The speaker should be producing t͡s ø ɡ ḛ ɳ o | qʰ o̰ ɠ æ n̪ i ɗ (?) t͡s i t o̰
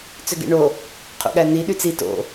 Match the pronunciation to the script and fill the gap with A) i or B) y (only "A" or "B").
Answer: B